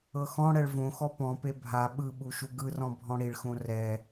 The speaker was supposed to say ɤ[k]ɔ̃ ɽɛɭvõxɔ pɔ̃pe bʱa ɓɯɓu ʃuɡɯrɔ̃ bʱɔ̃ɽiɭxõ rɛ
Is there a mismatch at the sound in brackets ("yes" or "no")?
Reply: yes